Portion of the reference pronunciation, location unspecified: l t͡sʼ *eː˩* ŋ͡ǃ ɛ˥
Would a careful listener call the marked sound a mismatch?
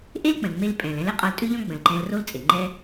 yes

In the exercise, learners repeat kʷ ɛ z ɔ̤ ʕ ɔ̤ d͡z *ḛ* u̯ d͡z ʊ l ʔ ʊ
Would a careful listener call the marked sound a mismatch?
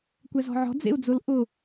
no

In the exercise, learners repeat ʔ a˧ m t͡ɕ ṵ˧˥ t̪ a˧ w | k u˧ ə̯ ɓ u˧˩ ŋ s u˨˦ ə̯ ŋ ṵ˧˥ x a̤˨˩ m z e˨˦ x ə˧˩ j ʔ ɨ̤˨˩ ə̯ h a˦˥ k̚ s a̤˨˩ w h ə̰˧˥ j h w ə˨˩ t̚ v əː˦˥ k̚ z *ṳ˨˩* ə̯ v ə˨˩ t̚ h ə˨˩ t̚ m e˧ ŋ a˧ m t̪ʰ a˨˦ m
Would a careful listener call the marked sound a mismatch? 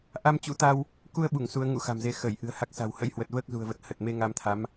no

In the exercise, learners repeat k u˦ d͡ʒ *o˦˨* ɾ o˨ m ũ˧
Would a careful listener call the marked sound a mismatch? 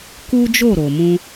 no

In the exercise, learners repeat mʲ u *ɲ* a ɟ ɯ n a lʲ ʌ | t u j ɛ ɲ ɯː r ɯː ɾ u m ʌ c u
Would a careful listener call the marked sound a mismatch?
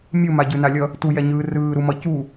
yes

